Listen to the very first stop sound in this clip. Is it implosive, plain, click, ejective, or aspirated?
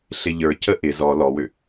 plain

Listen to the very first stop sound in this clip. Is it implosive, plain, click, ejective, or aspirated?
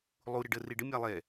plain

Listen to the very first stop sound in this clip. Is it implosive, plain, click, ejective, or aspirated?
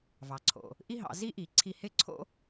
click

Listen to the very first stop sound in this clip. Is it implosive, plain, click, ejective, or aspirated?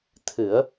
aspirated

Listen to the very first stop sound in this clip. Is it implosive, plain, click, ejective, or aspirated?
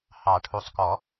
aspirated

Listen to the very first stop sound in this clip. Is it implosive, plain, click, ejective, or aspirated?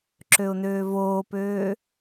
click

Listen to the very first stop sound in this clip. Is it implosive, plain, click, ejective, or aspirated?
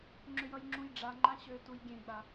click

